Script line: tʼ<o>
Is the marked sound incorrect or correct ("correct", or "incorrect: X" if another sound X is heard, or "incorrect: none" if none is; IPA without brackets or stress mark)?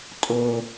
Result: correct